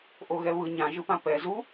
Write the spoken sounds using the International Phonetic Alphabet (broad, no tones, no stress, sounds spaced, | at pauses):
ʔ o ɣ ɛ β ɯ ɲ ã ʒ ɯ p ã p ɛ z u